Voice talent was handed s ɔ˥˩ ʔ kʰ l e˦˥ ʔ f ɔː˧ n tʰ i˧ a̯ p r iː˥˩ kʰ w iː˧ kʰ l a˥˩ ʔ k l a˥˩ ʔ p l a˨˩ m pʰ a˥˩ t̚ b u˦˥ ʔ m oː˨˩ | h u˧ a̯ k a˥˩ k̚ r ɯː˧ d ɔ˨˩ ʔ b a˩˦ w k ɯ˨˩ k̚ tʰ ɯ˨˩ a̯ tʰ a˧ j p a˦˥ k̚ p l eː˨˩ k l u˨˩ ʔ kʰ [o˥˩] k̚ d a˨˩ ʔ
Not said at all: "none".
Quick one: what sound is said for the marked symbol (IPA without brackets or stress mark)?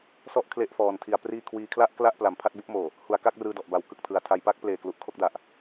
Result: o˥˩